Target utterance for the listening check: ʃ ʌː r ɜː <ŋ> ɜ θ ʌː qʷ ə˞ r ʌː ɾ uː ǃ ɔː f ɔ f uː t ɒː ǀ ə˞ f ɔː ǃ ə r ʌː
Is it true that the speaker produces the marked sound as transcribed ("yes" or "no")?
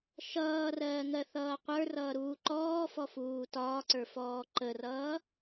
yes